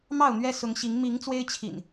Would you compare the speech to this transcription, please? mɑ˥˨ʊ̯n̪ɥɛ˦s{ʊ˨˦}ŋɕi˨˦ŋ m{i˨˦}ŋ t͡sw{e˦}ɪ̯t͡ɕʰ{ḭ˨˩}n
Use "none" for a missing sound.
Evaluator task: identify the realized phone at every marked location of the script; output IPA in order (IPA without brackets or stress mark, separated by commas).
ʊ˨˦, i˨˦, e˦, ḭ˨˩